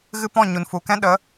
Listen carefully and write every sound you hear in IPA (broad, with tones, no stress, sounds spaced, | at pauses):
ɣ ɨ˦ p ɔ̃˦˨ ɲ u˨ n f u˨ k ɛ̃˦ ɗ ə˨˦